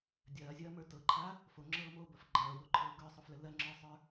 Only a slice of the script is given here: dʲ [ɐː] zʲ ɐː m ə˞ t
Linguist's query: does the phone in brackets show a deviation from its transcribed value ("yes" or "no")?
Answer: no